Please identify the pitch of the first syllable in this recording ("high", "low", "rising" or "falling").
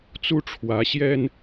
high